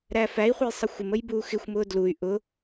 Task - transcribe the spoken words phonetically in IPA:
ɾ æ f æ i̯ χʷ ə j sˤ ə xʷ ɪ m ə j b uː x ɪ xʷ m ʊː d l u y̯ ʔ ʊ

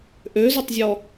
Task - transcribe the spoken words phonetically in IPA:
ʔ ø z o tˤ zʲ ɔ

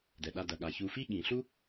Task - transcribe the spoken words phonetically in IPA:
d ɛ˩ ɗ a˨ d ɐ˩ ɠ a˩ ç u˨ f i˥ ɠ ĩ˩ ɬ u˦

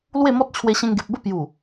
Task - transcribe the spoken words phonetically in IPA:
l w e˥˧ m ɔ˦ t̚ t͡ɕʰ w e˧ ɕ ẽ˧ ŋ ɡ e˨ p̚ b ə˥˧ p j u˨˩

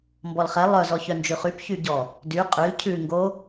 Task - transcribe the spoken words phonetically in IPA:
m b ɔ l χ ɛ lˠ œ z ɔ ç œ n d͡ʒ ʉ χ y p ç y ɟ ɔ | d y qʼ y l cʰ ʉ ŋ ɡ o

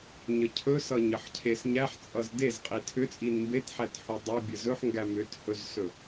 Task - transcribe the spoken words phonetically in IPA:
ɲ ə cʰ ɵ s ʌ ɲ ə ħ cʰ e s ɲ æ ħ t͡sʼ ʌ z d e z qʼ i tʰ ʏ t͡sʼ i n m b e t ħ æ t ħ u dˤ ʌ bʲ ə z ɵ ħ ŋ ɡ æ m ʏ t h ɵ z s ɵ

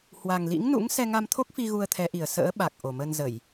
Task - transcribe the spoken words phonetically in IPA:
h w a˨˩ ŋ l ḭ˧˥ ŋ n ṵ˧˥ ŋ s ɛ˧ ŋ a˧ m t̪ʰ o˦˥ k̚ f i˧ ɣ u˧ ə̯ t̪ʰ ɛ˨˦ ʔ i˨˩ ə̯ s ə̰ː˧˥ ɓ a˨˩ k̚ ʔ o˨˩ m ə˧ n z ə˧˩˨ j

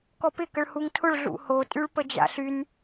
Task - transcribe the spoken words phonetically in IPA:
k ɔ p ɪ k ə ɭ h u ŋ tʰ ʊ ɭ ɮ ṵ h o tʼ y ɭ p ə d͡ʒ a̰ ɬ y n

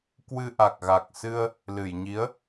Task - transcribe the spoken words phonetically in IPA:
k w ɨ˧ ʔ a˨˩ k̚ ɣ a˨˩ k̚ s ɨ˧ ə̯ | l ɨ˧˩ j ɲ i˨˦ ə̯

